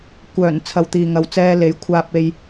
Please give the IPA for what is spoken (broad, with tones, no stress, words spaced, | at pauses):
kʷœː˨˩n t͡sʰɐ˨wt̪iː˨ŋɐ˨w t͡sɛː˧le˨˥jkʷʰaː˧p̚ e˧j